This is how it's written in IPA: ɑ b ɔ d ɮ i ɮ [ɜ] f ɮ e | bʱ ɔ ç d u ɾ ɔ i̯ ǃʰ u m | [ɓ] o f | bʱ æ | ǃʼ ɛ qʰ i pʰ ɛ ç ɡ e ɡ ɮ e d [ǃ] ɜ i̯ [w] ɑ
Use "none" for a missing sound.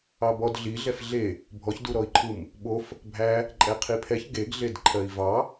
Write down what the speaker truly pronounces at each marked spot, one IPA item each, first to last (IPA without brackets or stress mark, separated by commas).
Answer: ɛ, ɓ, ǃʰ, v